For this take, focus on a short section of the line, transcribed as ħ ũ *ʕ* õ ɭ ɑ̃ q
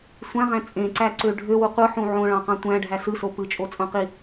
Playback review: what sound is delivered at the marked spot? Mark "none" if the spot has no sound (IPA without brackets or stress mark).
ʕ